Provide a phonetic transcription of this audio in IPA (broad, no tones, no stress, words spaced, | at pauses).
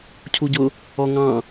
cʰuɟʊ | ɔŋɑ̃